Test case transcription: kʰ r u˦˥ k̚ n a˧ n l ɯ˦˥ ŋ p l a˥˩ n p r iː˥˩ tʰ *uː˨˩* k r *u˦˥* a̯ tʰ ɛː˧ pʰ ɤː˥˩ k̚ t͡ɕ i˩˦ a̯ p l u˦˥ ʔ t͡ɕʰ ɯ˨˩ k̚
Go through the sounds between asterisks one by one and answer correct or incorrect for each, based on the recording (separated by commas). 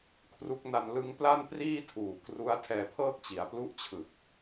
correct, correct